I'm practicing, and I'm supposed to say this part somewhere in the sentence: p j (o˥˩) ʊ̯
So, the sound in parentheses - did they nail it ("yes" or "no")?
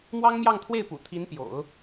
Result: no